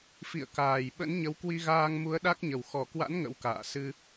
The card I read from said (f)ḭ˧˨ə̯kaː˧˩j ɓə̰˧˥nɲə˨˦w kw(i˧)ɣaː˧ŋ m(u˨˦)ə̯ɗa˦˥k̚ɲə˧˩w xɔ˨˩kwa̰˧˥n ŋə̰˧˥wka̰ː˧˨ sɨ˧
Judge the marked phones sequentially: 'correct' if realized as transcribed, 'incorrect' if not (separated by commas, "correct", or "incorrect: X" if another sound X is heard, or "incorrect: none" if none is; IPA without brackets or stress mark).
correct, correct, correct